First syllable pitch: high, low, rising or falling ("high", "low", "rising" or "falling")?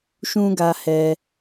high